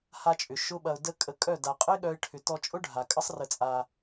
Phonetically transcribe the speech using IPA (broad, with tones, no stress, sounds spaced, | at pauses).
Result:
h a˧ t͡ʃʼ ʏ˨ ʃ ʊ˦ ɓ ɐ˧ ʊ̯ d ə˦ kʼ ə˧ kʼ œ˦˨ d a˨ qʼ ə˦ ɪ̯ ɠ œ˦ ɪ̯ ʈʰ ʏ˧ t ɔ˧ t͡ʃʼ ʊ˦ ɖʱ a˨ kʼ ə˦ sˤ r ə˧ t͡sʼ a˧